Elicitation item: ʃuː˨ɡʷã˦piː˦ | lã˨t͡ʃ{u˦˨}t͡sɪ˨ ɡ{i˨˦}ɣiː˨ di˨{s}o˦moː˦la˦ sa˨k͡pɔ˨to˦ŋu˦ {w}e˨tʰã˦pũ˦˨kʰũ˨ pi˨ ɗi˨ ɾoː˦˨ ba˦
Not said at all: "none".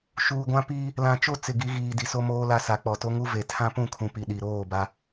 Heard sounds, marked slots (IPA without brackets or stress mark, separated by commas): o˦˨, i˨˦, s, v